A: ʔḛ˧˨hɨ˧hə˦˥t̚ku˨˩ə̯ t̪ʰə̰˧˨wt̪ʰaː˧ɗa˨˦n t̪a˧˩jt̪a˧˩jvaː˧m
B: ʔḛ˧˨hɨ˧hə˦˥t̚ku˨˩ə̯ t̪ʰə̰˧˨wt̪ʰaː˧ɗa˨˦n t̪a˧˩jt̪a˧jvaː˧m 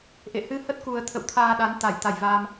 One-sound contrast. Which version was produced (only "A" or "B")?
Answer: A